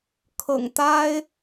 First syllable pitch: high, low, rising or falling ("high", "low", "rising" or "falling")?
low